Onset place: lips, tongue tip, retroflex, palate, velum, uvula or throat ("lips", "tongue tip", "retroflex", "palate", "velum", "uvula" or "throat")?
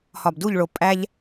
throat